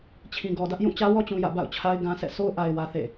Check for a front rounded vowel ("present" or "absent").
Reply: absent